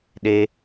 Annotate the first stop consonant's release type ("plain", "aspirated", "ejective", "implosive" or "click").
implosive